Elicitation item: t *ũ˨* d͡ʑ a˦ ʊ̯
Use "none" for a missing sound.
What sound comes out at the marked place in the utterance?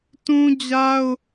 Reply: ũ˦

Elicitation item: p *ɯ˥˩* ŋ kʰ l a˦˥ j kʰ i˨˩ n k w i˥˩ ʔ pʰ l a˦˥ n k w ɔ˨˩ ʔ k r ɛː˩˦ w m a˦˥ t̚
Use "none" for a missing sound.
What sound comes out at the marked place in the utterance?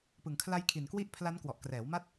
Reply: ɯ˨˩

